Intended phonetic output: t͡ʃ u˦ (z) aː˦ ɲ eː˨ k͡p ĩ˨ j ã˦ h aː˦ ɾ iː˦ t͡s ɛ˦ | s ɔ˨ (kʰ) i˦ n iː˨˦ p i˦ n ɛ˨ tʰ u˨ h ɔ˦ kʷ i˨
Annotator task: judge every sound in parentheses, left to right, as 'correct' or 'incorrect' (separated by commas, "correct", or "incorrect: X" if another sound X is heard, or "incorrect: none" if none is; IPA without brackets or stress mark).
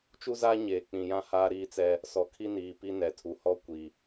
correct, correct